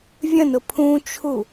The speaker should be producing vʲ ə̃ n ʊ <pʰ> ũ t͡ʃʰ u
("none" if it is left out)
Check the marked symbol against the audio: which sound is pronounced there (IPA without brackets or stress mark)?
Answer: pʰ